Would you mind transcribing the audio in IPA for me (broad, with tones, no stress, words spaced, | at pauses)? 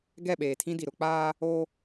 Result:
ɡɛ˦˨ɓeː˨tʰĩ˦di˨ ɾʊ˦ k͡paː˦ | o˦